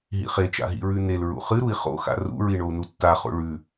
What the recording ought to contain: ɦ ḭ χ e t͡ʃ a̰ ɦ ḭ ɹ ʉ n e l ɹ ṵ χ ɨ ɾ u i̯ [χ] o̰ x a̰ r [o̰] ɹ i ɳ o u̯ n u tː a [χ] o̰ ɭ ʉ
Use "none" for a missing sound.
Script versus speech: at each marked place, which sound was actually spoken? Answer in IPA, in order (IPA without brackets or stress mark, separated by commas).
χ, ṵ, χ